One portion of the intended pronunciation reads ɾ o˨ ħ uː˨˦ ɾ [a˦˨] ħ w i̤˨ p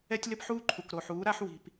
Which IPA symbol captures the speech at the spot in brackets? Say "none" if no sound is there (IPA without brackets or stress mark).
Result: a˦